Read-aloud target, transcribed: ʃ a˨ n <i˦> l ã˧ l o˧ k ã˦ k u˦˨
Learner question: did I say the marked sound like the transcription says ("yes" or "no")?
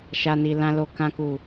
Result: no